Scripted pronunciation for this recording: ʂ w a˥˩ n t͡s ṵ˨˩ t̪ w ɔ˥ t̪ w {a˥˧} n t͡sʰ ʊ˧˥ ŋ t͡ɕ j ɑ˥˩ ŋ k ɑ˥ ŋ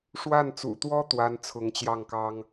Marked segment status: incorrect: a˥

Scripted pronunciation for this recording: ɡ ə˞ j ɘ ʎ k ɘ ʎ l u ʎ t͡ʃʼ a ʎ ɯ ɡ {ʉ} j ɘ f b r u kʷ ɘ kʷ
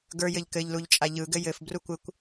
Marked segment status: incorrect: ɘ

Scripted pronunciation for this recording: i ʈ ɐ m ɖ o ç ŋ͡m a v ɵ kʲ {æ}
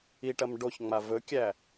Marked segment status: correct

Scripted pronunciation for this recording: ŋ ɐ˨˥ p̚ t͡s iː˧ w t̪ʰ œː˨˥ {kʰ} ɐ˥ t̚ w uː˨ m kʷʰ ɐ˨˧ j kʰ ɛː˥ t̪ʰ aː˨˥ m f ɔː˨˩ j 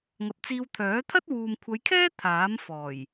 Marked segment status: incorrect: t̪ʰ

